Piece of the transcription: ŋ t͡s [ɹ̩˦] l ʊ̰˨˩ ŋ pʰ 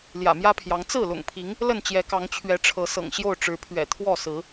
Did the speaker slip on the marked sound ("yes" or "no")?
yes